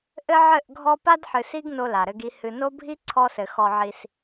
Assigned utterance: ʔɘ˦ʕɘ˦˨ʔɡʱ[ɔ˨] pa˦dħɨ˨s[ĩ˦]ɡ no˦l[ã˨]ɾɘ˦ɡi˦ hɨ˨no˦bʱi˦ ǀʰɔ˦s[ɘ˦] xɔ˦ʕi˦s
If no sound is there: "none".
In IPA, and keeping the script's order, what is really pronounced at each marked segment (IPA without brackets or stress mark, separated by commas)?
ɔ˦, i˦, a˨, ɘ˨